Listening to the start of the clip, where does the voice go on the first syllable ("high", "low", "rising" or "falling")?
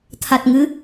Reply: low